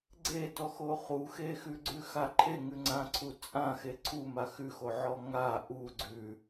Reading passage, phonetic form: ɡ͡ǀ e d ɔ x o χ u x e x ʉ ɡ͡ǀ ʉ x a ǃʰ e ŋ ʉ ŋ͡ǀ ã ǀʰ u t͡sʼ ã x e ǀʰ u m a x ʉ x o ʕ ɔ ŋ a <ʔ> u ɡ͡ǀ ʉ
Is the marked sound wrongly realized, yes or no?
no